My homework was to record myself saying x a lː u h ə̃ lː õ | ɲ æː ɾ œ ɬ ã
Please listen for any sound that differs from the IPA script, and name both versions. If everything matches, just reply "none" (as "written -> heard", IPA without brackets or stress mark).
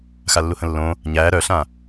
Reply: none